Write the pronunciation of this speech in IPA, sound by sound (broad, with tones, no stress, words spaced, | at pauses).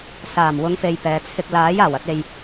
saː˨˩m wʊ˨˧ŋfe˨j pɛː˨˧t͡sʰɪ˧k̚ laː˨˥jaː˨˩w ɐ˧t̚e˨j